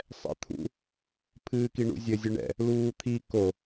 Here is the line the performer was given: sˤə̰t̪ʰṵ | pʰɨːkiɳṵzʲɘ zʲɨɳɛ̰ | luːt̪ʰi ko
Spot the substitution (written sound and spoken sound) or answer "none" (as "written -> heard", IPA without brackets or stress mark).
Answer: ə̰ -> ɛ̰